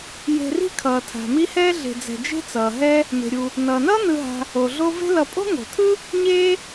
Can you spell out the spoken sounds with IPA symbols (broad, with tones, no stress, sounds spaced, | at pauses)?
j e̤˨ r i̤˥ kʰ ʌː˩ tʰ a̤˩ m i˦ h ɛː˥ ɮ e̤˨ d͡z ɛ̤˨ d͡ʒ e̤˦ t͡s ʌː˩ ɦ ɛ˦ | m e̤˩ ɾʲ u˩ | n ʌː˩ n ʌː˥ n ɯ˨ ɦ a̤˨ | o˩ ɮ o˦ v e̤˥ l ʌ˨ pʼ o̤˥ ŋ o̤˩ tʰ ɯ˥ | ɲ eː˥